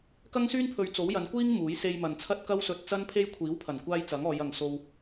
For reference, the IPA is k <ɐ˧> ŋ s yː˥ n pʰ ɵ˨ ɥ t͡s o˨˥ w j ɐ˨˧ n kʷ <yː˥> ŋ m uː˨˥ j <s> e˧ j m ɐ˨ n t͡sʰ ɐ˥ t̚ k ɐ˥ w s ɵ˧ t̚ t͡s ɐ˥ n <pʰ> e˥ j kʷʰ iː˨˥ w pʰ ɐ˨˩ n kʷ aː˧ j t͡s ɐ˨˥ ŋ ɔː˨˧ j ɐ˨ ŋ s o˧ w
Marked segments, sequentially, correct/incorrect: incorrect: ɐ˥, incorrect: iː˥, correct, correct

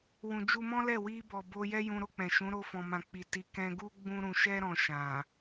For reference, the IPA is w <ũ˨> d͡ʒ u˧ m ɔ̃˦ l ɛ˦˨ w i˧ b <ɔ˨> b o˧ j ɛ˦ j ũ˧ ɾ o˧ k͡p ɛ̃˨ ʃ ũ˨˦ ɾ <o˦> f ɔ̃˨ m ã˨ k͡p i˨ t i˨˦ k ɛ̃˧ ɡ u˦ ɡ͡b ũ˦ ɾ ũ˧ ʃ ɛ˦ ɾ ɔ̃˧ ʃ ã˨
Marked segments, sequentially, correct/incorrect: correct, correct, incorrect: o˧

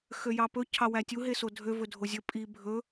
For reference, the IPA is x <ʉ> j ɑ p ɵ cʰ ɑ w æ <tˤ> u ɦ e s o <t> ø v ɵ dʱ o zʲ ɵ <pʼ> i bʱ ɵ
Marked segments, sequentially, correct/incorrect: incorrect: ø, incorrect: tʲ, incorrect: dʱ, correct

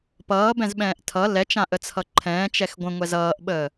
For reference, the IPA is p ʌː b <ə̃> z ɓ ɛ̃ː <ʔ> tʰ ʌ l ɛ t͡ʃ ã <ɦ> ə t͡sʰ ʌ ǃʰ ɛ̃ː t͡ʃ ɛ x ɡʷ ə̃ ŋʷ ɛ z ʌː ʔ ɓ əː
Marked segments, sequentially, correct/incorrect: incorrect: ɛ̃, correct, incorrect: ʔ

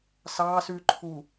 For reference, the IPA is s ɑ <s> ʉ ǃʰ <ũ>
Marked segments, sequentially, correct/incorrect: correct, incorrect: u

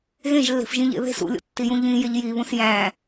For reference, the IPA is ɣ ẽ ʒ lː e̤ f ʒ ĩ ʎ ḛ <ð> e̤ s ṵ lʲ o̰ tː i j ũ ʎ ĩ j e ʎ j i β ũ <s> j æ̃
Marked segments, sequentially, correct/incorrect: correct, correct

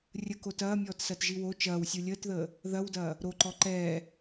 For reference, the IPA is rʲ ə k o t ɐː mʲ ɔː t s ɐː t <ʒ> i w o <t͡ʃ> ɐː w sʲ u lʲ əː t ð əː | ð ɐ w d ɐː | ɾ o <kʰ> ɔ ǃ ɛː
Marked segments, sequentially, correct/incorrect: correct, correct, incorrect: ǃ

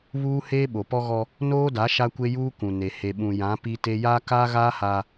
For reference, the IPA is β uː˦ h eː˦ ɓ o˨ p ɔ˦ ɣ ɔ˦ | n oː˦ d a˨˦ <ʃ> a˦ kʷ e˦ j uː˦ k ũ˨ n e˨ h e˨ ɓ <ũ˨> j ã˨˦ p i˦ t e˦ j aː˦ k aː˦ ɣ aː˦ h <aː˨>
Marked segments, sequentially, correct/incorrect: correct, correct, incorrect: aː˦

